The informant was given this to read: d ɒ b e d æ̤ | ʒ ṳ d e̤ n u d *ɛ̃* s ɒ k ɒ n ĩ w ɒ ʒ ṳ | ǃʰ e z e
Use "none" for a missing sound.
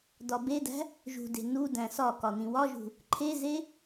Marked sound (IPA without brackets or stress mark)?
æ̃